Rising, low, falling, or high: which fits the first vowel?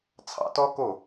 low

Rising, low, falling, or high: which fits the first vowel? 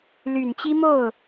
low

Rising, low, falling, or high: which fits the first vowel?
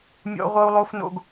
high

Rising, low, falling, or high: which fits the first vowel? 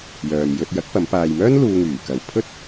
low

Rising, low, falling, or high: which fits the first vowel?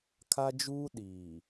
high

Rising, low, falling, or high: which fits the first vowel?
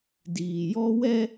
low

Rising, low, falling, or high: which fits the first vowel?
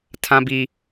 high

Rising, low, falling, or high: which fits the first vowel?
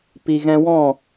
low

